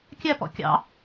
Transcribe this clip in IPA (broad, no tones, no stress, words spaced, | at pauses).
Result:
kʲæpɔ̰ kʲɑ̰